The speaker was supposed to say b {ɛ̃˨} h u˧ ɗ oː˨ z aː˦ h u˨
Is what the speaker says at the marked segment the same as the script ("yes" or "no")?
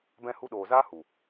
no